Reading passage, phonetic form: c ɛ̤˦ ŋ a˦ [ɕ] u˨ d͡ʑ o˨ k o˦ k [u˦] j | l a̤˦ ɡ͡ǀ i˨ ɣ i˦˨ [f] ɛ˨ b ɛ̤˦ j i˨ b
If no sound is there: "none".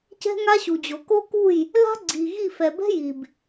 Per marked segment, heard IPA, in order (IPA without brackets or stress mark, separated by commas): ɕ, u˦˨, f